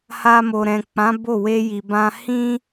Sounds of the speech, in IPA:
h a˧ m o˨ ɾ ɛ̃˨ k͡p ã˨˦ b o˦˨ w e˧ j i˨ b ã˧ h ĩ˦

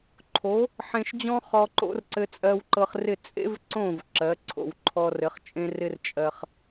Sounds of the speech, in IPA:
ǃʰ o˩˥ | ħ ẽ˧ ʃ d͡ʑ ɔ̃˥ χ ɔ˧ ǃ o̰˥ r ǀ ɘ˧ t͡sʼ ɜ˧ w ǃ ɤ˧ χ r ɪ˥˩ t͡sʼ ḛ˥ v ǀ õ˥˩ v ǁ ɜ˩˥ ǀʰ o̰˩ w ǃʰ ɔ˧ r ɘ˩˥ χ t͡ʃʼ ẽ˥ r ɪ˥ r t͡ʃʼ ɜ˧ χ

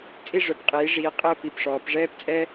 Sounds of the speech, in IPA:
t͡sʼ i˦˨ ʐ œ˩˧ p qʼ iː˩˧ ʐ iː˩˧ qʼ əː˦˨ p i˩˧˩ p ʂ ɔː˩˧ p ʐ ɛː˥ p t͡sʼ ɛ˥

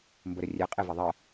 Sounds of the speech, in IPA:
m b ə ɾ ə rʲ ɛ qʼ e v ɪ ðˤ ɜ

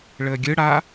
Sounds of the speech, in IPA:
ɭ əː ɡʲ ɯ ɽ a

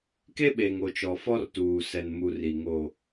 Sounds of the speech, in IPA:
k e˦ ɓ eː˨ ŋ o˨ t͡ʃ ɔ˨ f ɔ˦ r t uː˨ s ɛ˨ n m u˨ r i˨ ŋ o˨

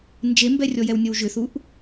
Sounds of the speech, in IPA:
n d͡ʒ e m b ɛ rʲ ɔ j ɛ w nʲ ʌ w ʒ ʏ θ u ʔ

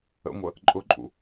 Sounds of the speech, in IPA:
ə̰ ŋʷ ə | ǃʼ ʊ ǃʼ ṵ

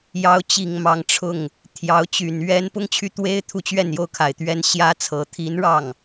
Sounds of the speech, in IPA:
j ɑ˧˥ ʊ̯ t͡ɕ i˨˩ ŋ m ɑ˧˥ ŋ ʈ͡ʂʰ ʊ˥˩ ŋ | t̪ʰ j ɑ˧˥ ʊ̯ t͡ɕ y˨˩ n ɥ ɛ˥ n p ʊ˥ ŋ t͡ɕʰ y˥˩ t̪ w e˥ ɪ̯ t̪ʰ u˥˧ t͡ɕ ɥ ɛ˥˧ n j o˥˩ ʊ̯ kʰ a˨˩ ɪ̯ t̪ ɥ ɛ˥ n ɕ j ä˥ t͡sʰ ɤ˧˥ t̪ʰ i˧˥ n ɻ ɑ˥˩ ŋ

